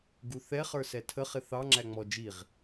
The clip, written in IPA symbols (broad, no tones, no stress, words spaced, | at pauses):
ɡuθɛχə˞ sɛtʰəχɪ θɑŋ͡ǁæ ŋ͡mɔ d͡ʒiʁ